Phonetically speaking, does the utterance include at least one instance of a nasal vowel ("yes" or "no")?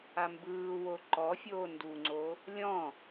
yes